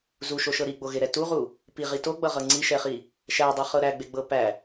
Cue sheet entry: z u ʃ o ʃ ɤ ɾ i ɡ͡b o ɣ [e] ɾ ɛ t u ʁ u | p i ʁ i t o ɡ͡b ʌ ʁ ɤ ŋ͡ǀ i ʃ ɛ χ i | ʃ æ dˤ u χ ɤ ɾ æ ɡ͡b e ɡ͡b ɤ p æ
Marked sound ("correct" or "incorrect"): correct